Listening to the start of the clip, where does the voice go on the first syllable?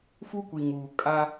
high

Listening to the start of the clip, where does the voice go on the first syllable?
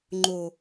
low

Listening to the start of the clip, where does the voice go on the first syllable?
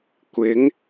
rising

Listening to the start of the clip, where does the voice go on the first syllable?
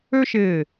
high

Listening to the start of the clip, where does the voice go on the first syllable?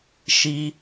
high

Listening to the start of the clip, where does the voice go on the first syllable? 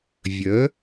rising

